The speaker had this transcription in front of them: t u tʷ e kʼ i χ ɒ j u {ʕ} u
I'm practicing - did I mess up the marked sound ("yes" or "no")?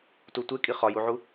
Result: no